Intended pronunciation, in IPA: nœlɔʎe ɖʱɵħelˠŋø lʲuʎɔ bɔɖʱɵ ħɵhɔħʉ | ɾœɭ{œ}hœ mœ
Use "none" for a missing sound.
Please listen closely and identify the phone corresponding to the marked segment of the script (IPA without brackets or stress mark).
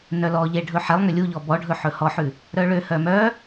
ø